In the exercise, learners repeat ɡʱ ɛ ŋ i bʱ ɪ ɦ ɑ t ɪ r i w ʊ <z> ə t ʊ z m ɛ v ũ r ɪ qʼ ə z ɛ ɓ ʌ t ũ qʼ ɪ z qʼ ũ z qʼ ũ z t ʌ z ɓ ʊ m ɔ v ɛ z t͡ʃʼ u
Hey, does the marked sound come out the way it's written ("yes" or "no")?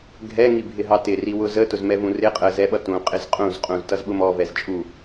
yes